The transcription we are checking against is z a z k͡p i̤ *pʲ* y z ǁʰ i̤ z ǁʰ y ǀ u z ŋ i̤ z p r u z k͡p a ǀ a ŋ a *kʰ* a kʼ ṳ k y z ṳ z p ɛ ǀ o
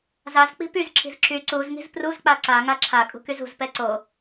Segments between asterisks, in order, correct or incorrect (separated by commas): incorrect, incorrect